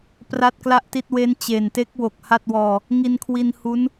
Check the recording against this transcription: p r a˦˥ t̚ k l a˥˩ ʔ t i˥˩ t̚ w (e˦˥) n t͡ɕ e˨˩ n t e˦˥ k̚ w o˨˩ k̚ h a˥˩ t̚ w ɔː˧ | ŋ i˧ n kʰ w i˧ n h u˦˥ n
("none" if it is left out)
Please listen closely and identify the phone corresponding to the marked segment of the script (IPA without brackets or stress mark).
e˦˥